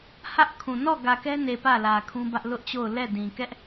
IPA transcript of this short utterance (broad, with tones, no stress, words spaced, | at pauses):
hä˦ʔkʰũ˨ nɔ˦˨ɡä˨kɛ˦ne˨ pä˦˨lä˨kʰũ˦bä˦ʔ lʊ˦ʔt͡ɕo˦˨ʊ̯ lɛ˦˨dĩ˨ kɛ˦ʔ